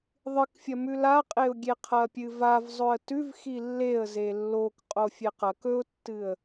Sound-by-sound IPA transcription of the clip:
ðˤ ɨ k fʲ ɐ m ʉ l a qʼ e ʊ̯ ɡʲ e qʰ ɐ pʲ ɨ v a v zˤ ɵ ə̯ t ʉ v x i lː e ə̯ z e lː o k qʼ o fʲ e q ɐ k ɵ ʊ̯ tː ɨ ə̯

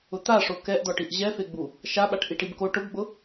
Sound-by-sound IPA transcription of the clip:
ʊ t̪ a ʂ o k ɛ ʔ d̪ ɔ ʈ i ʔ ʑ ɛ f e ɡ͡b u | ʃ a ɓ a ʈ ʔ i ʈ i b k o ʈ ʊ b ɡ͡b ʊ

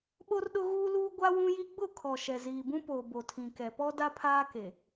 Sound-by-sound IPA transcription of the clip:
ɓ o˦ r ɗ ʊ˦ ɣ uː˦ l uː˦ ɡʷ a˦ w ũ˦ j i˦ ɡ͡b ʊ˦˨ kʰ ɔ˨ ʃ ɛ˨ z iː˨ b ũ˦ p oː˨ b o˨ tʰ ĩ˨ k ɛ˨ p ɔ˦ d a˦ pʰ aː˦ k e˨

